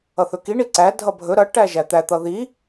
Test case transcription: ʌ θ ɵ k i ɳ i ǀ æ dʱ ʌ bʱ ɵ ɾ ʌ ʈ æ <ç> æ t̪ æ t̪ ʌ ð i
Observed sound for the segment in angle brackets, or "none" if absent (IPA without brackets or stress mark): ʒ